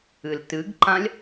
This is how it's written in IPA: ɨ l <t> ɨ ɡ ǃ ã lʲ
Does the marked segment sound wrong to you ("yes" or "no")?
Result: no